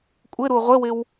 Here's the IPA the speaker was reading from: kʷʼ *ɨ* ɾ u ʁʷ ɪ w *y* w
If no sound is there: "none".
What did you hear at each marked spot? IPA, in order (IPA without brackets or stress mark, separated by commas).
ɪ, ɪ